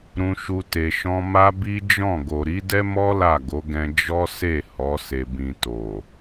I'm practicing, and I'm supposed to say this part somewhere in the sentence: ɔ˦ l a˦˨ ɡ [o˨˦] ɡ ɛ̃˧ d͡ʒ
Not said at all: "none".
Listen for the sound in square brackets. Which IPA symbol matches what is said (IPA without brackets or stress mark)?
o˨˦